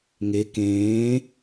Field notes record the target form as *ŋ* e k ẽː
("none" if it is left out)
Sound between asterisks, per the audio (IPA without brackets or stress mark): ŋ